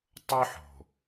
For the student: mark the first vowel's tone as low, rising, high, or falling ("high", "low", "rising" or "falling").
high